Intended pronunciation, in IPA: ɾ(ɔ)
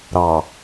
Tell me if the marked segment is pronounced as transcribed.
no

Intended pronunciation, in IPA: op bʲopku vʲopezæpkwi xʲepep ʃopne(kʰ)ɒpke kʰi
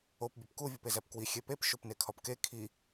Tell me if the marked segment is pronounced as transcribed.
yes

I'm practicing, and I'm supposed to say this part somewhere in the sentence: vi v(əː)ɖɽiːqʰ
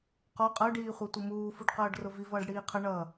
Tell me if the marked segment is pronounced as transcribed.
no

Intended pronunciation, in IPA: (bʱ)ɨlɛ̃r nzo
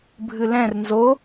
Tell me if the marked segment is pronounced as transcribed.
yes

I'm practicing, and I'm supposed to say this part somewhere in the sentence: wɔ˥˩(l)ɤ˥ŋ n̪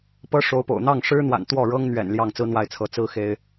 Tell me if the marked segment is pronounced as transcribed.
no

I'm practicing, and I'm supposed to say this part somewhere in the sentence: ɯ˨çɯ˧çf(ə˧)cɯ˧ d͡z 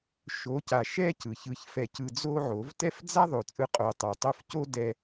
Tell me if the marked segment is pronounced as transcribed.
no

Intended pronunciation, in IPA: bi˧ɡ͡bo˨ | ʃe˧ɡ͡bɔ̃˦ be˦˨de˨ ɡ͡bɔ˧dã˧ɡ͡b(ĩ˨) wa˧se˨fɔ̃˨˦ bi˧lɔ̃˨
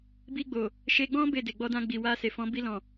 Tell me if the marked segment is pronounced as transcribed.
no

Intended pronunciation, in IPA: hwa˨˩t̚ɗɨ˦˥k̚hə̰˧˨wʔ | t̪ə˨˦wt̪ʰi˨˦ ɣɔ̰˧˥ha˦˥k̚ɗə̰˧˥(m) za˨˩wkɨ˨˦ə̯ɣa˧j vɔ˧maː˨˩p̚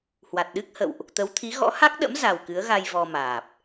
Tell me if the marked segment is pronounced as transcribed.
yes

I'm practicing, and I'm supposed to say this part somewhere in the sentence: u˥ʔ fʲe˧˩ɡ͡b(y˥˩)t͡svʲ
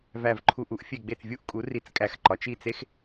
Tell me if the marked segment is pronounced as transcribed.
no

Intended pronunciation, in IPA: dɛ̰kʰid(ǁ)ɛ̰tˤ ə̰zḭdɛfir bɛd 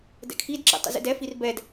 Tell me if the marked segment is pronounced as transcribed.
yes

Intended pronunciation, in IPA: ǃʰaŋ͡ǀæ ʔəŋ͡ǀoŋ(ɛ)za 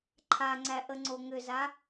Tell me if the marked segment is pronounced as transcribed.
no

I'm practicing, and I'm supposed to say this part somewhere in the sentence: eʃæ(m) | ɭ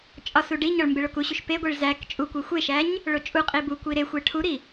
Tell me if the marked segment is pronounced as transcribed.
no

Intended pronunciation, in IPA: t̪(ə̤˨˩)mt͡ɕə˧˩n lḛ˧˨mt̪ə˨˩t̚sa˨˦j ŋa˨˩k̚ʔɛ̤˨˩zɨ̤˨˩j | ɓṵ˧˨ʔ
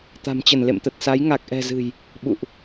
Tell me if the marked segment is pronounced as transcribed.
no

